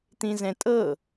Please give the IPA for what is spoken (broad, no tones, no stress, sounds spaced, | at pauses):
t̪ ĩ z ɛ̃ tʼ ɤ